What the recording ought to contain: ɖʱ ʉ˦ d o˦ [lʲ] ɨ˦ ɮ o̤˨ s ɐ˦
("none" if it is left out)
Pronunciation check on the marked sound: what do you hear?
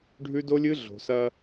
lʲ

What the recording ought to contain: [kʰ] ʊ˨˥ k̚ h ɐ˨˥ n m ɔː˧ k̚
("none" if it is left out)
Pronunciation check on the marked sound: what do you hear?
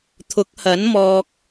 t̪ʰ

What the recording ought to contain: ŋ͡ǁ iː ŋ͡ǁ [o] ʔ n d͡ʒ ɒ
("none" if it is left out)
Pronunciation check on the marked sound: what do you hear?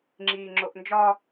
o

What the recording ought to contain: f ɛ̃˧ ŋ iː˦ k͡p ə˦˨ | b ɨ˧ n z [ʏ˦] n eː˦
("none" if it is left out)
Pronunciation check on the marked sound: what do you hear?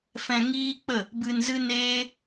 ɨ˦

